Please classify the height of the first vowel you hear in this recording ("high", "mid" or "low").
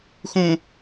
high